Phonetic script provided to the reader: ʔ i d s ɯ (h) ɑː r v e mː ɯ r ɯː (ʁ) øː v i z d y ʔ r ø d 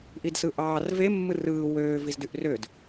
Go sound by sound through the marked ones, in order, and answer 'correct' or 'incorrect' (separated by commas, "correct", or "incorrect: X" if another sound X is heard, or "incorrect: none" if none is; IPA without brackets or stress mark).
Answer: incorrect: ʔ, incorrect: w